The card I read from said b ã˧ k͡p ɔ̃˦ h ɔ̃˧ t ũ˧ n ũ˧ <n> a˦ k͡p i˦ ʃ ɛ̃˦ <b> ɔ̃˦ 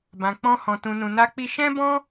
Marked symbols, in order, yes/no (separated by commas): yes, yes